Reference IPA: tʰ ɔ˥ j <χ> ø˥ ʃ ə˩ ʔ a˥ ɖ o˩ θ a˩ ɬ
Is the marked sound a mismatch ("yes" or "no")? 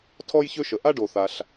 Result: yes